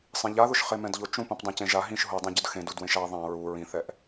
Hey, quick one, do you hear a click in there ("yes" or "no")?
no